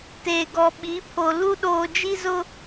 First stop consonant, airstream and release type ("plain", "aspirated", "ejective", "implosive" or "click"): plain